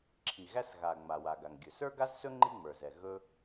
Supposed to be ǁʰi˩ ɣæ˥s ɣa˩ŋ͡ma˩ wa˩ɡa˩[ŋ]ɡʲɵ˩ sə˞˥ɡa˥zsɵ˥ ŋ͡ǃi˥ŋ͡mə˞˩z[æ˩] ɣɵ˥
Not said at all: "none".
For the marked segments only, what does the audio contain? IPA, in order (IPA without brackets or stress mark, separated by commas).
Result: ŋ, ɛ˩